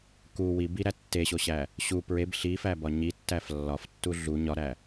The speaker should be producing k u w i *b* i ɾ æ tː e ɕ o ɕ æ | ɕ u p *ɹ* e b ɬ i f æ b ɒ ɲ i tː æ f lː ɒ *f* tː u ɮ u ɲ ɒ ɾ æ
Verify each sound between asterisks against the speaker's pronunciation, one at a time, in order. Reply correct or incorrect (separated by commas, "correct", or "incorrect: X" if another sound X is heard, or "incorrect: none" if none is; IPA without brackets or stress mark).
correct, correct, correct